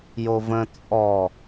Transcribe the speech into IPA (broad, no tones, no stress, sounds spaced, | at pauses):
j o v ə̃ t͡sʼ ɔ